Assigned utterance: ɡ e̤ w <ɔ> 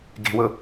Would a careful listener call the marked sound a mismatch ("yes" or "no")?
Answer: yes